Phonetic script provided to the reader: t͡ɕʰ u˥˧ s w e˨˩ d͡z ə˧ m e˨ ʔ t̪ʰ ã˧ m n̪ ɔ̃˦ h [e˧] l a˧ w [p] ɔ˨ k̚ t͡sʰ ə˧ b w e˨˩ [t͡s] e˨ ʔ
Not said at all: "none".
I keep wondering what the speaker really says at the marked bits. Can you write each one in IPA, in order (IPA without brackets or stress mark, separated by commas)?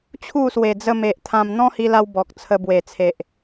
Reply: i˧, b, t͡sʰ